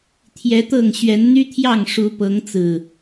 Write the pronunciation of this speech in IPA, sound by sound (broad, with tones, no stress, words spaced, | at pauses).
t̪ʰjɛ˨˦t̪ɤ˥˨ŋ ɕɥɛ˨˦nn̪y˦t̪ʰjɑ˥˨ŋ ʂu˨˦pɤ˨˦ŋt͡sɹ̩˨˩